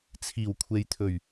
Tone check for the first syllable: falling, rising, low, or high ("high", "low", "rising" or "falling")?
low